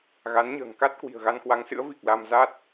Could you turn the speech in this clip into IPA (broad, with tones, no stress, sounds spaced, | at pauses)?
ɣ a˨˦ n ɲ ə̤ː˨˩ ŋ k a˦˥ t̚ k w i̤˨˩ ə̯ ɣ a˧ n k w a˨˦ ŋ s ɨ̰˧˥ ə̯ v i˨˩ k̚ l a˧ m z a˦˥ t̚